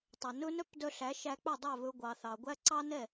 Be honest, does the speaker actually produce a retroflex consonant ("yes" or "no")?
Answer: no